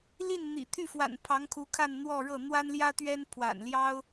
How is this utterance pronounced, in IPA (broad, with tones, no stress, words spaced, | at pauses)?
li˥˩n n̪ḭ˨˩ t̪ʰy˥˩fwa̰˨˩n pʰɑ˧˥ŋkʰu˧˥kʰa˥˧nn̪wɔ˥˧ ɻɤ˥˩ n̪wa˥nljä˥t̪ɥɛ˥n pʰwa̰˨˩nljɑ˥ʊ̯